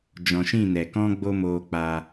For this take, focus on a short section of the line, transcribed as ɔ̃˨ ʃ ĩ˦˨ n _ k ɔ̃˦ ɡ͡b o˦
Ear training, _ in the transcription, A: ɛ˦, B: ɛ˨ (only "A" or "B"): B